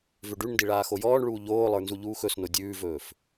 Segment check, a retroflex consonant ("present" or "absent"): present